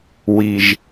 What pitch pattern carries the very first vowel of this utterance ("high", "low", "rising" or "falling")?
high